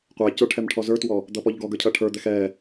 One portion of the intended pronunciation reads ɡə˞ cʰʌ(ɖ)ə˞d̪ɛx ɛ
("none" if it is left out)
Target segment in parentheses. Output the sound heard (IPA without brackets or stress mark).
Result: ʈʰ